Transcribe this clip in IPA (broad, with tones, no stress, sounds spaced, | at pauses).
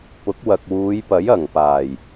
p ʊ˨˥ k̚ w ɐ˨ k̚ w uː˨˧ j p ɐ˨˥ j ɐ˨˩ ŋ p aː˨˩ j